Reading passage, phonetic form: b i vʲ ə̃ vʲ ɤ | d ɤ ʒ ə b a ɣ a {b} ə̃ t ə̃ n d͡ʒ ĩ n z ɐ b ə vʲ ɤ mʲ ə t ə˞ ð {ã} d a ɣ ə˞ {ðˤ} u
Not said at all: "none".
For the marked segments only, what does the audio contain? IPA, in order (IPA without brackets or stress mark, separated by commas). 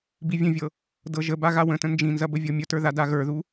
w, a, ð